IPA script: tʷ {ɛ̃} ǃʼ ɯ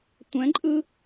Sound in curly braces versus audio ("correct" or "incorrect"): correct